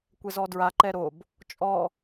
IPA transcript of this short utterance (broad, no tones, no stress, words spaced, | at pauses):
kʷɛzɔdɹa ǃɛɾob | t͡ʃʼɔ